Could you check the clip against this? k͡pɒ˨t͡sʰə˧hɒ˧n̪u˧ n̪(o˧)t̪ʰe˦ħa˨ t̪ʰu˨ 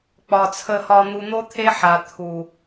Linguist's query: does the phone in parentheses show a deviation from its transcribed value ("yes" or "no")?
yes